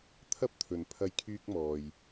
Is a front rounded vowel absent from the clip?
no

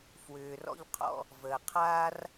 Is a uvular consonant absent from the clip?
no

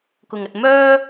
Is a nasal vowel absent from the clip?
yes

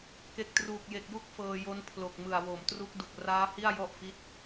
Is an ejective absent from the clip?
yes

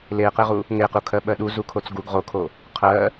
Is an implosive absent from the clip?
no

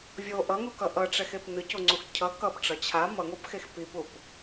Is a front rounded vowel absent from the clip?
yes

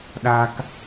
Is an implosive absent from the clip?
no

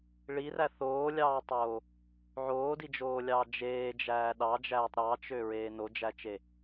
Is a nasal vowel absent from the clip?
yes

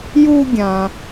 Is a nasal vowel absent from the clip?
no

